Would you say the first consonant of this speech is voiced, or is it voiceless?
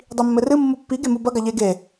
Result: voiced